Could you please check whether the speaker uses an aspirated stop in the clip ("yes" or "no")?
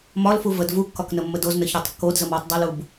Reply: no